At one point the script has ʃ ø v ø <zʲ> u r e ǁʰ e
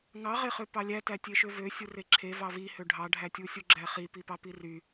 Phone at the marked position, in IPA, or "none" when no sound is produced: sʲ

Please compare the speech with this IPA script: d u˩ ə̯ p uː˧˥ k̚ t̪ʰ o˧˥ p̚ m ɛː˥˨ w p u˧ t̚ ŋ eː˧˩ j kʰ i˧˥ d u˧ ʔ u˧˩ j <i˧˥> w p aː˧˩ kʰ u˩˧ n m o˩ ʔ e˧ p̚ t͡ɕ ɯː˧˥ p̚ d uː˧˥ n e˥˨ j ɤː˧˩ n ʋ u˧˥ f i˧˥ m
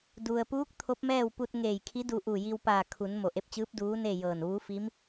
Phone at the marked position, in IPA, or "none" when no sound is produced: i˧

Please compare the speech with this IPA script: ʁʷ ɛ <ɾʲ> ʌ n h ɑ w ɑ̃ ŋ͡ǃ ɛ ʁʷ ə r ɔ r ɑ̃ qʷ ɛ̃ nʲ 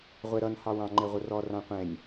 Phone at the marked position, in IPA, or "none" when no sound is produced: ɾ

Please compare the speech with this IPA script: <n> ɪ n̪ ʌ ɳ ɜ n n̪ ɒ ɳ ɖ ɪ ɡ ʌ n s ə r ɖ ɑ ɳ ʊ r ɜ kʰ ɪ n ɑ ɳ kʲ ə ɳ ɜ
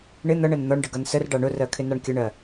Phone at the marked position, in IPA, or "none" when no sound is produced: ɳ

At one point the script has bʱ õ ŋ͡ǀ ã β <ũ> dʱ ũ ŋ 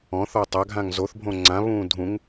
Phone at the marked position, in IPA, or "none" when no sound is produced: ũː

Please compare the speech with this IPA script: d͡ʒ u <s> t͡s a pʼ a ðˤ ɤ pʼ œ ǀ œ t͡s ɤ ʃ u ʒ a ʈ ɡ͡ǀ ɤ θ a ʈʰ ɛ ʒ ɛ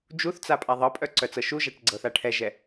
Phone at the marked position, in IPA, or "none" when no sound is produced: θ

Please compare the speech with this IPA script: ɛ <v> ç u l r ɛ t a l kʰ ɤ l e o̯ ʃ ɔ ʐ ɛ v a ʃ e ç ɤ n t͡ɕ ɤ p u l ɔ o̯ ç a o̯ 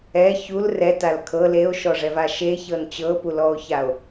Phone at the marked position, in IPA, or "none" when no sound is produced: none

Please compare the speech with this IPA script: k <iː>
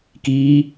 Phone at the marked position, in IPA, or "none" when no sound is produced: iː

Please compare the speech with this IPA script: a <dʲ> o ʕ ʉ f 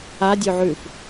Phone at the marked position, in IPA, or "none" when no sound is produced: dʲ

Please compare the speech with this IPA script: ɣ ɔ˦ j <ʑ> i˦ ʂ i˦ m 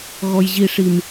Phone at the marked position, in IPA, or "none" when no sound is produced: ʑ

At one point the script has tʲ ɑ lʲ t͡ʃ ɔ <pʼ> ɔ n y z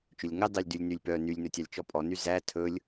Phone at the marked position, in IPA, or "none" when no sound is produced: pʼ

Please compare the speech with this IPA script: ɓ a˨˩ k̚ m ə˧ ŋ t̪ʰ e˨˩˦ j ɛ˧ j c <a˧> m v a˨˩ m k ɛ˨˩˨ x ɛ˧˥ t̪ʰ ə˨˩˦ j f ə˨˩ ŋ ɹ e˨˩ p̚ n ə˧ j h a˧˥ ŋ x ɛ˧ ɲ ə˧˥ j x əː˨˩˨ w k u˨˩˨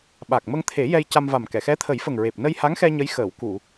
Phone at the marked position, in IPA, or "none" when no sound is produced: a˧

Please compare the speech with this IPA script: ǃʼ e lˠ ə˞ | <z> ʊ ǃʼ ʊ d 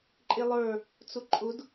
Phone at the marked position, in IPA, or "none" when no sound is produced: t͡s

